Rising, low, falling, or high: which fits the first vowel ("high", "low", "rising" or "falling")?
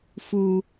low